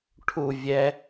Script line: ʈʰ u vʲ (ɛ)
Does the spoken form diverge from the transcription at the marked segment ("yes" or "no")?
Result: no